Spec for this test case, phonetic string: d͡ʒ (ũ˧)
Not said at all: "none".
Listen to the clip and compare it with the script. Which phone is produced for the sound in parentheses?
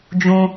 ũ˧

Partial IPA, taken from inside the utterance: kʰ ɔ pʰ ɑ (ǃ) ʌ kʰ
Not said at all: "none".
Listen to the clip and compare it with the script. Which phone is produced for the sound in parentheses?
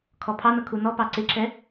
n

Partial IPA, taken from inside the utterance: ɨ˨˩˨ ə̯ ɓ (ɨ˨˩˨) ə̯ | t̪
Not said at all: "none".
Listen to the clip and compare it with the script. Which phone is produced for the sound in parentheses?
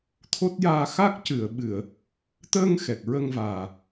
ɨ˨˩˨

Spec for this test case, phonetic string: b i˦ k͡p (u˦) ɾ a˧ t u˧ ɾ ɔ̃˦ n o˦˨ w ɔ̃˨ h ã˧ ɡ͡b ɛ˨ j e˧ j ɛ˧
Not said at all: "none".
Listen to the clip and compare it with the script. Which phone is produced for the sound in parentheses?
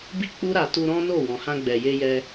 u˦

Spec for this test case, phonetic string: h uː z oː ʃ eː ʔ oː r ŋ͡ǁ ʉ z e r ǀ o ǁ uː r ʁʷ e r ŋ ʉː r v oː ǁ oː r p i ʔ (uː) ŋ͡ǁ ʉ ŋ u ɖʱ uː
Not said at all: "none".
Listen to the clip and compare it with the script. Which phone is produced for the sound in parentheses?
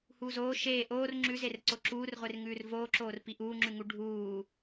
uː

